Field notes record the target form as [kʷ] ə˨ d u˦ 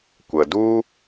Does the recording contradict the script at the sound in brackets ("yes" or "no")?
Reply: no